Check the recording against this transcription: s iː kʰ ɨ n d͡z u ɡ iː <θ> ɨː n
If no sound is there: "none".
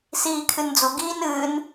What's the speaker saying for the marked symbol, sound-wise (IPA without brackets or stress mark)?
n